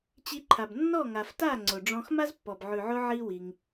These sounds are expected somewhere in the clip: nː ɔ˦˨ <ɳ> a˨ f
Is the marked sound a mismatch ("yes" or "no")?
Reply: yes